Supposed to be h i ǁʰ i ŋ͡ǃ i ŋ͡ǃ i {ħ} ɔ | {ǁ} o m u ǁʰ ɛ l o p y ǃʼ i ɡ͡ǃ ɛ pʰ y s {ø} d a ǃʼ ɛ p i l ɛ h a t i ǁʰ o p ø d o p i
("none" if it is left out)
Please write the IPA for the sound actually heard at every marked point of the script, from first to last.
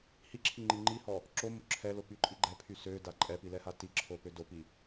h, ǁ, ø

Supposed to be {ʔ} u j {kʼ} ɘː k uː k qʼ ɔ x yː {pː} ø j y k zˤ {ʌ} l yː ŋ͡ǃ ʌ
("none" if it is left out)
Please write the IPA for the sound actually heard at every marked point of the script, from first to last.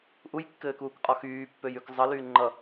ʔ, kː, pː, ʌ

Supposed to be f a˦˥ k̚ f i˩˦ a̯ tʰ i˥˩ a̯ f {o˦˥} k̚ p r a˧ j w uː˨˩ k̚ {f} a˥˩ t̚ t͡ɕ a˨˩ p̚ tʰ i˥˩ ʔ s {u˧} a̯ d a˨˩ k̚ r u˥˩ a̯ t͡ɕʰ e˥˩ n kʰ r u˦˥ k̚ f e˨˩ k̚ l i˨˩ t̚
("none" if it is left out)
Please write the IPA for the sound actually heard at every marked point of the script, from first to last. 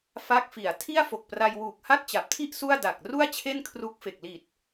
o˨˩, h, u˥˩

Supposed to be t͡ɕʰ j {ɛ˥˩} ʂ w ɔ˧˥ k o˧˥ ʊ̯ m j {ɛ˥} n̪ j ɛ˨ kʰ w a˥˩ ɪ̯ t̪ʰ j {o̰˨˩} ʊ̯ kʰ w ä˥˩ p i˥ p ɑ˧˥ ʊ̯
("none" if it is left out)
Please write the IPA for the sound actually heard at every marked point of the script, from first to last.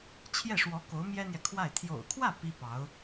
ɛ˥˩, ɛ˥, o̰˨˩

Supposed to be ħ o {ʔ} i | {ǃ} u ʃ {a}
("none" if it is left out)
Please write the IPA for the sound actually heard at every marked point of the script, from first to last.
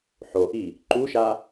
ʔ, ǃ, a

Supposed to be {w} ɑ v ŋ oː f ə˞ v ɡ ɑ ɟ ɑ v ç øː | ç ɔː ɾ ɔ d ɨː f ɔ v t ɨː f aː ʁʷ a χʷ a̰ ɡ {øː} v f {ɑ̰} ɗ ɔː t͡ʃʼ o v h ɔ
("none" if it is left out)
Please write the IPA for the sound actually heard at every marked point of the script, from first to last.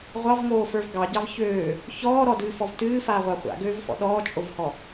ʁʷ, øː, ɔ̰

